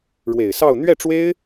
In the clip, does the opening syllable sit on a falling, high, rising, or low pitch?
low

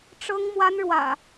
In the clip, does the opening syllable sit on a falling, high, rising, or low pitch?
high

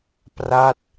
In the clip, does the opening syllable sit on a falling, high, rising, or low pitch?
falling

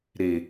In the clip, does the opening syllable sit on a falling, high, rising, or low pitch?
low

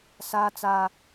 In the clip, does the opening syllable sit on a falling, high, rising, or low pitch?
low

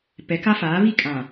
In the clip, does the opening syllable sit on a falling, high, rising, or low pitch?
rising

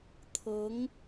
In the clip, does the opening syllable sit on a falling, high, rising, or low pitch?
rising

